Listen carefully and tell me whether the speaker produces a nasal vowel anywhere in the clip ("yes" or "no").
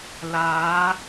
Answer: no